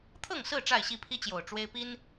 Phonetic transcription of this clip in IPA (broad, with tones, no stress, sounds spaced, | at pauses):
t̪ʰ ɤ˥˨ ŋ s ɹ̩˥˨ ʈ͡ʂ a˥˨ ɪ̯ ɕ i˥˨ pʰ i˦ t͡ɕ j o˨˩ ʊ̯ ʈ͡ʂ w e˦ ɪ̯ p i˦ n